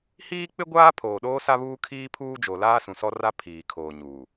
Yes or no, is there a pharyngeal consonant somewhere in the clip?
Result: no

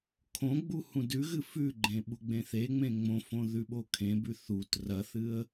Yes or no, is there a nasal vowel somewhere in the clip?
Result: yes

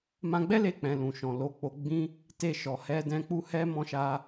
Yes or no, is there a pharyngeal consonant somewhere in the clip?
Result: no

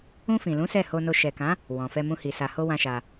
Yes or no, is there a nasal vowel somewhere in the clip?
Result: yes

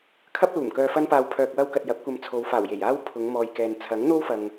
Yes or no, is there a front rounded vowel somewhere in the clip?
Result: yes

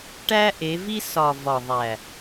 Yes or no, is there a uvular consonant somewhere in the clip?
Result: no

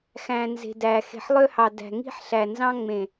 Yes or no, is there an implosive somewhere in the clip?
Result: no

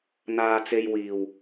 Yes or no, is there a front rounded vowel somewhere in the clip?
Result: no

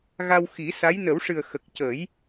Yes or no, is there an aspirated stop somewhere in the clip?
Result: no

